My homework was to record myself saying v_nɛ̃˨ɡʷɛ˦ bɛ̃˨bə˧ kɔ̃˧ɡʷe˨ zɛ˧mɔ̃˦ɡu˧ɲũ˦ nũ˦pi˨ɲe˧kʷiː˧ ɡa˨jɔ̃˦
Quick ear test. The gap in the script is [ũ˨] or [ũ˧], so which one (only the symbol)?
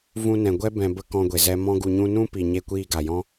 ũ˧